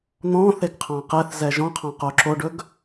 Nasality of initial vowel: nasal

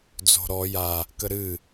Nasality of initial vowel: oral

